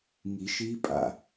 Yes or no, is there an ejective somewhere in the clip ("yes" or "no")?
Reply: yes